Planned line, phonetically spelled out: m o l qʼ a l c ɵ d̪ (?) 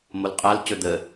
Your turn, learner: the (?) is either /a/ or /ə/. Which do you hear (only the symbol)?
ə